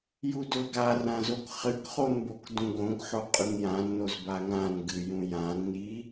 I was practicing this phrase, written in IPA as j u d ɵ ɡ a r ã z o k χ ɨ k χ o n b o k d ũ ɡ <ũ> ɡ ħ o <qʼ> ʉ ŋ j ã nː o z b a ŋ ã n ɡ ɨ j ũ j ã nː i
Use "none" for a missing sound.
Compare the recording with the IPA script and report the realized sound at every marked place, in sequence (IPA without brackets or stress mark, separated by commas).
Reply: õ, qʼ